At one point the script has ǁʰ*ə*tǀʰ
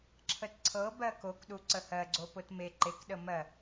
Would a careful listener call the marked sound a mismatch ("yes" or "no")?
no